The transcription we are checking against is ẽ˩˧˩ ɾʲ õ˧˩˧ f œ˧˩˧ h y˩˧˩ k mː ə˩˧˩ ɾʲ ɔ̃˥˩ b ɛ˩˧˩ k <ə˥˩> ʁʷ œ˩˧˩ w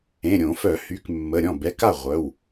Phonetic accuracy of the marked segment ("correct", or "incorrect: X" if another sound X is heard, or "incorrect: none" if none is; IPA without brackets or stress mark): incorrect: a˥˩